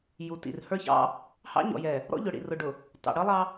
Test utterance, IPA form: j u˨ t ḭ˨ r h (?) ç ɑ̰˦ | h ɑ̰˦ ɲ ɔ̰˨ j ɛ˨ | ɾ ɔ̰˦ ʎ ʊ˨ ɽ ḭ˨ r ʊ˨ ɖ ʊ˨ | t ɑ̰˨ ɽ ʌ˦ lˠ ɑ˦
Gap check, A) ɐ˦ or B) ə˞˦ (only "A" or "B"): B